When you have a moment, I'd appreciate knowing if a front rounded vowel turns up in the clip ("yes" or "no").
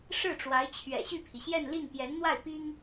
yes